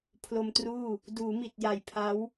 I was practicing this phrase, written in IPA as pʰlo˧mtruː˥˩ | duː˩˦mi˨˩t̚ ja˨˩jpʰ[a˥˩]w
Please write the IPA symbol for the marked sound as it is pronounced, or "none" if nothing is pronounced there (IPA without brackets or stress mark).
a˦˥